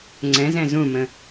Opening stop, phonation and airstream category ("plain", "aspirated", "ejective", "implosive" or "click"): click